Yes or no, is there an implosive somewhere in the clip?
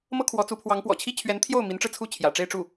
no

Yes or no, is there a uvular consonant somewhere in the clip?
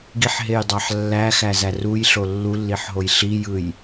no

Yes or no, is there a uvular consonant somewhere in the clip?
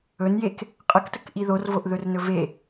yes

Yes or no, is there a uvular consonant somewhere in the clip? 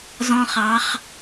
yes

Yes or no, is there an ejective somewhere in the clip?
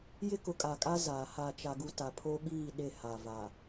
yes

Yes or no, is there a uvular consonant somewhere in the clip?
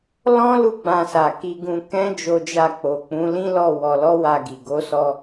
no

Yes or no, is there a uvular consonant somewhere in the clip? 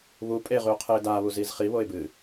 yes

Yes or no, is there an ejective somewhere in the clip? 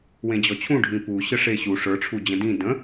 no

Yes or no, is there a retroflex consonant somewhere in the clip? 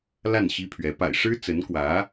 yes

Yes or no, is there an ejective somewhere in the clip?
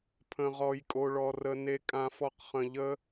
yes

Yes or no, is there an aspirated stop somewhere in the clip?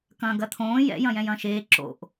yes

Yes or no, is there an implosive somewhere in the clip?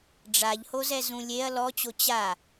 no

